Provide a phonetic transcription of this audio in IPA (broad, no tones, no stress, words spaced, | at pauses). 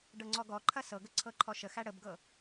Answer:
ɖɤŋ͡ǀɔɡɔǃʰɐ sɤɡə ǀʰɤǃʰɔʃəxæ ɽəbɡɤ